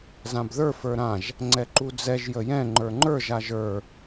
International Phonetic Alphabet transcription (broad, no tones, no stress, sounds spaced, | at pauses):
z ã b ð ə˞ f ə˞ ɾ ã ʒ | ŋ͡ǀ ɛ ǃ u d͡z ɛ ʒ j ə j ɛ̃ ŋ͡ǃ ə˞ ŋ͡ǃ ə˞ ʒ a ʒ ə˞